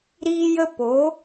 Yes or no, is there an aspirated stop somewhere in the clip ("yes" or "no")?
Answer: no